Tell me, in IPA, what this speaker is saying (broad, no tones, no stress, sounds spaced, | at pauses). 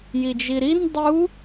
j i d͡ʒ i ɾ i n dˤ u